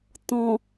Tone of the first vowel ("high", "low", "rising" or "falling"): low